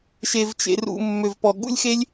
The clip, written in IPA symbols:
ʃe˨vt͡ʃḛ˨rṵ˨ mːø˨vpɔ˨ɠṵ˦lʲxe˦lʲ

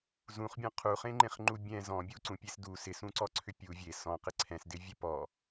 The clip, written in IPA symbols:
zũχbʲɔ̃ qʰuχẽŋ͡ǃẽχŋ͡ǃu bʲɛ̃ zɔ̃ bʲuǀũpʲes du sɪsũǀɔǀʰʏ pʲu vʲe sɔ̃qɪ ǀʰɛ̃sdɪvʲɛ pɔ

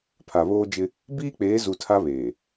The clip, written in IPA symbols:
pʰa˨βoː˦d͡ʒɪ˦ | biː˦k͡peː˨˦zu˨ tʰa˦βeː˨

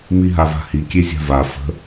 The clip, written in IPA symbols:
miɦava̤hi kʲezʲa̤va fə̤

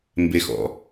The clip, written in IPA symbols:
mbexɔ̰

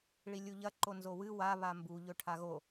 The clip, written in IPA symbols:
ɭilʲuʎɐ ǃonzowɨ wa βambu ʎɵʈʰaɣo

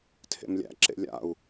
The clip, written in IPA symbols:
tʰḛmlʲæ̰ ǁḛlʲa̰u̯

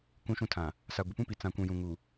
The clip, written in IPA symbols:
kũ˦ʃũ˦tʰã˨ | sa˨ ɡʷɪ˨pũ˦pi˨ t͡sã˨kʷũ˨ jũ˨ŋu˨

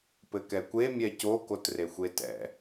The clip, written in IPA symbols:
pɘkɛkʷe mʲɛco kotrexʷetɛ̰

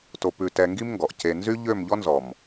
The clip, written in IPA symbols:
to˧pʉ˧tɛ˧ ŋɡi˦mŋɡɔ˨ʔce˧ nzy˦ʎø˦˨m ʎɔ˦nzɔ˨m

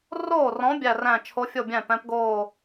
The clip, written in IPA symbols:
roː˥˩rɔ̃˨˥ bʲæ˥˩ræ̃˥˩ t͡ʃʰo˨˥fʲo˥˩ bʲæ̃˥˩pɛ̃˨˥pɡoː˥˩

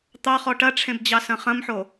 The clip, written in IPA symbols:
t̪ɑχɔ ʈɐʈ͡ʂʰẽbd͡ʑɑsɐ̃ χɐ̃mħo

